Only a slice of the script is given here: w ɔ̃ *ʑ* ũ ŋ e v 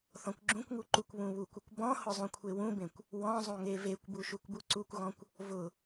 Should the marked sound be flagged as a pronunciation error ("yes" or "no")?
yes